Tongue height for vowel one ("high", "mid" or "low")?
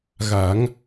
low